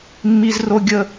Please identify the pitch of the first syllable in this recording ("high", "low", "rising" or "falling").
low